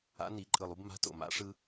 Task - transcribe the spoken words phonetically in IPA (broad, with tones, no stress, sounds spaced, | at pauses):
a̰˨˥ n i˨˩˦ ǃʼ ɯ˨˩ lˠ u˦ b m a̤˨˥ t o̰˨˩ m a̰˨˥ ʂ ɯ˦